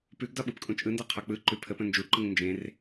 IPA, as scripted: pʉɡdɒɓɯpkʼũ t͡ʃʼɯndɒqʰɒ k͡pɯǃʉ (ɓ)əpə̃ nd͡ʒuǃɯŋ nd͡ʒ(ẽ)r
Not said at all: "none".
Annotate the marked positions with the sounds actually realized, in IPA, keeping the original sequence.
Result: pʰ, ẽ

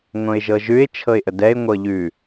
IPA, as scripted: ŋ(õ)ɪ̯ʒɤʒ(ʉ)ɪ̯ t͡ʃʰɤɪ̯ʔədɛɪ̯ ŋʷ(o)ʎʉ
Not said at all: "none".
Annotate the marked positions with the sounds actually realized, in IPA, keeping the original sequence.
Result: õ, ʉ, ɤ

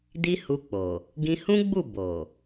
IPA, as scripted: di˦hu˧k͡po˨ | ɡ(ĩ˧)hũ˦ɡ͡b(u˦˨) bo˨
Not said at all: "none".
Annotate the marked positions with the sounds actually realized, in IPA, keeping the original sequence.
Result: ĩ˧, u˦˨

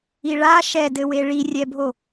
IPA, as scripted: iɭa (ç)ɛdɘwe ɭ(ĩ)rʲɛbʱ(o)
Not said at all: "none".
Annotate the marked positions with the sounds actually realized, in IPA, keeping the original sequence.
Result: ʃ, i, o

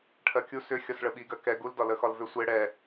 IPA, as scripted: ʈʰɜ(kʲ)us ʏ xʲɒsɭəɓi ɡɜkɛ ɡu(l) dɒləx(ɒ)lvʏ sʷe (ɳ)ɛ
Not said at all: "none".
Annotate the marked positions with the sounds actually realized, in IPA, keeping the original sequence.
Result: kʲ, l, ɒ, ɽ

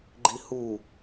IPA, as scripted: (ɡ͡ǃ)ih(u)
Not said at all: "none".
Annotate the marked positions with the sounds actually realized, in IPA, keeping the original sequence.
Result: ɡ͡ǃ, u

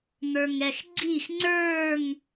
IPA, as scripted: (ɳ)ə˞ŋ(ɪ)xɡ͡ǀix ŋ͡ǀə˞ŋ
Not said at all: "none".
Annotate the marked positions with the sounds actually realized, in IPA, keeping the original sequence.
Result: n̪, ɛ

